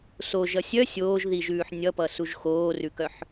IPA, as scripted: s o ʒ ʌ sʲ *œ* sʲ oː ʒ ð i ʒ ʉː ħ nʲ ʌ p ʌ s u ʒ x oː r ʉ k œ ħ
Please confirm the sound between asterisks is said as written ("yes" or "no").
yes